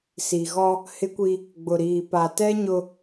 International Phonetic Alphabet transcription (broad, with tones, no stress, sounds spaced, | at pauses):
s i˨ ɣ ɔ˦ | h ɪ˦ kʷ i˦ | ɡ͡b ʊ˨ ɾ iː˨ p a˨ t ɛ˦ ɲ ʊ˦